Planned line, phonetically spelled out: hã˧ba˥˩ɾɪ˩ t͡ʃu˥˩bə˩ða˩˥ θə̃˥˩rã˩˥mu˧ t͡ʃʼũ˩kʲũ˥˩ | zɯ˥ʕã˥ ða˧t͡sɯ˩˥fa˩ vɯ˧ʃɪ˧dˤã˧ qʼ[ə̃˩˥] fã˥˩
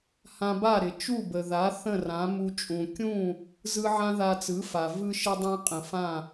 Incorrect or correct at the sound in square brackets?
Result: incorrect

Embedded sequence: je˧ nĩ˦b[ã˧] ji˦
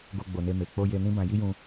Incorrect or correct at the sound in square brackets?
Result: correct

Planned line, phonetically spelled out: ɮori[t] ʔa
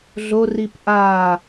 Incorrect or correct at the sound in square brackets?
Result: incorrect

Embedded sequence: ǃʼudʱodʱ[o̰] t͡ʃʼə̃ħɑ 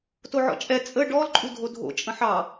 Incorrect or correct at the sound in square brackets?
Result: correct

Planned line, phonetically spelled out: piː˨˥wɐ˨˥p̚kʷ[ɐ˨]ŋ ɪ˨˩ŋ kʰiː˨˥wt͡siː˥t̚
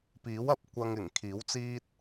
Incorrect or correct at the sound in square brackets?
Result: incorrect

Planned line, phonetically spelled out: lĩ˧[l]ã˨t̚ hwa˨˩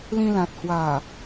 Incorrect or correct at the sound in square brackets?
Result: correct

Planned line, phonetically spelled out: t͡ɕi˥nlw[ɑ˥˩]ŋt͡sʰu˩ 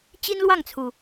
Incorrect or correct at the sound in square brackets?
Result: correct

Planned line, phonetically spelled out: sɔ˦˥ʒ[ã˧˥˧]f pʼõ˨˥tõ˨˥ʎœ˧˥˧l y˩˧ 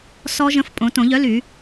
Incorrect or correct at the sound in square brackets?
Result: incorrect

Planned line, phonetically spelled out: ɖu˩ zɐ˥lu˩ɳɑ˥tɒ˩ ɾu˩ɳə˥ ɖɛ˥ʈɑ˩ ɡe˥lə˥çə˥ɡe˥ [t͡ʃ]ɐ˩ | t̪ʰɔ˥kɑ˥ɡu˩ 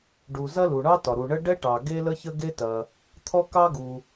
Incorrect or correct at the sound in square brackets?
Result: incorrect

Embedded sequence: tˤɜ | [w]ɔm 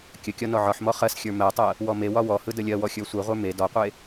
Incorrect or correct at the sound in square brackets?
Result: correct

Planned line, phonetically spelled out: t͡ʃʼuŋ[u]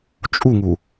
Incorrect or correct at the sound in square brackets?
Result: correct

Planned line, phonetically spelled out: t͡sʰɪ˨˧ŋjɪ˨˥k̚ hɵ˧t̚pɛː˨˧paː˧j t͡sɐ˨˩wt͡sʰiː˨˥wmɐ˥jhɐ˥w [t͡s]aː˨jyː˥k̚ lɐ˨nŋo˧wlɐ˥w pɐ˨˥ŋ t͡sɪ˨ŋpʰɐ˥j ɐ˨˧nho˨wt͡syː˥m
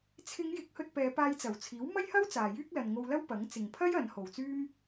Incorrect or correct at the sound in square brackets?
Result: correct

